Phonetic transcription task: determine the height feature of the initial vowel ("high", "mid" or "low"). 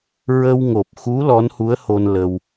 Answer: mid